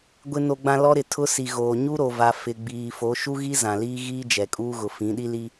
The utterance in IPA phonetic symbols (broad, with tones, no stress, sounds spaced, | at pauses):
ɡʷ ɪ˨ n o˨ ɡ͡b ã˨ l ɔ˦ ɾ ɪ˨ tʰ ʊ˦ s i˨ ɣ oː˨ ɲ u˦ ɾ o˨ v a˨ f ɪ˨ ɡ͡b iː˨ f o˨˦ ʃ u˦ ɣ i˦ z ã˨ l iː˦ ɣ iː˦ d͡ʒ ɛ˨ kʼ uː˦ ɣ ʊ˨ f ĩ˨˦ ɗ i˦ l i˦